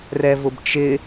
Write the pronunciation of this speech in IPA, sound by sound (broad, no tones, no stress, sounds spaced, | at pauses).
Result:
r ɛ v ʊ b t͡ʃ ɪ